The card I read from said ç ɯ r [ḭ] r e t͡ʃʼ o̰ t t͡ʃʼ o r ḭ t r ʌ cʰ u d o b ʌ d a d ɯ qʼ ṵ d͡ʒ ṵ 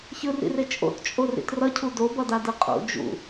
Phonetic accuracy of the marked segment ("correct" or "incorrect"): correct